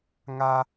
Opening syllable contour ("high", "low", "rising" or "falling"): high